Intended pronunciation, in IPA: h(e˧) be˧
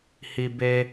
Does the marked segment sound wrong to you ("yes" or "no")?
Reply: yes